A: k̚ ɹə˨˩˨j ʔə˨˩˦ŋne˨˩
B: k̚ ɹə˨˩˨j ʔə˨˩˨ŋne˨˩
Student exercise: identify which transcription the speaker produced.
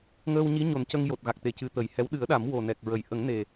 A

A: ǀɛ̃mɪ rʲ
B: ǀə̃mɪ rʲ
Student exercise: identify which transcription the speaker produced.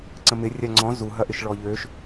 B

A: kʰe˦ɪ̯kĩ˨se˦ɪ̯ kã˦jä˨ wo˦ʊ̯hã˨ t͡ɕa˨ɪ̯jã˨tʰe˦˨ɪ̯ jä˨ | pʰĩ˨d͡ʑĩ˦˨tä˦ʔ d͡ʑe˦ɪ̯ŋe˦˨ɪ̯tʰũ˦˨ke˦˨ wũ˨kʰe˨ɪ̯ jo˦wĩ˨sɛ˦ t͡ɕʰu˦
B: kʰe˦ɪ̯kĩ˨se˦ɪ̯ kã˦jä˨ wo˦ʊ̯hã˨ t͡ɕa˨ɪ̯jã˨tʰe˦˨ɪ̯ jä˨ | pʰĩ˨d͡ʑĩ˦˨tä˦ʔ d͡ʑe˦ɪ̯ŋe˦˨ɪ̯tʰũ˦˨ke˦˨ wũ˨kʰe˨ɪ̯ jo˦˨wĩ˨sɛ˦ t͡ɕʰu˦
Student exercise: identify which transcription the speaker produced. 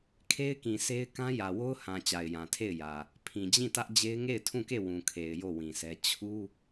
B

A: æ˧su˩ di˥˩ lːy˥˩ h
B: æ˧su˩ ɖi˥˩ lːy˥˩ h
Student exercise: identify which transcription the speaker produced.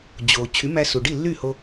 B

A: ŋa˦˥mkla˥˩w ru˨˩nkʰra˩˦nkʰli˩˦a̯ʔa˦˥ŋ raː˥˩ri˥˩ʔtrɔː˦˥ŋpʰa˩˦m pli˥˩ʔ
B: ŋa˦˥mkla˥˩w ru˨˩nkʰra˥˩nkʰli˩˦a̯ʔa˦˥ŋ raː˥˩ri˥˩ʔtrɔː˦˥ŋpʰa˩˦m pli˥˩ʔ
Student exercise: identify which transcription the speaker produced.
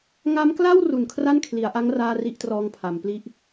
B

